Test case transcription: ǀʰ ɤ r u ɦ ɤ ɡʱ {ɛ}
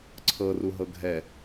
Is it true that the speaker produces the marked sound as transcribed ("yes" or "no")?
yes